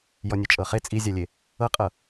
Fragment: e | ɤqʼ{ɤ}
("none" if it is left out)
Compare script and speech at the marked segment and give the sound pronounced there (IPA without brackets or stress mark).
ɤ